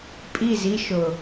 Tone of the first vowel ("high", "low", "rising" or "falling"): falling